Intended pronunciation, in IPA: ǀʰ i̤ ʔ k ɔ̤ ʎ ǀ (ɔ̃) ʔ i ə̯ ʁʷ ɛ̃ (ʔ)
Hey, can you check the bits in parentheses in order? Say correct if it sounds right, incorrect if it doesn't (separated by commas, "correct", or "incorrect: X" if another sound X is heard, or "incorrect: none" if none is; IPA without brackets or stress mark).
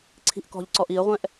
incorrect: ɔ, correct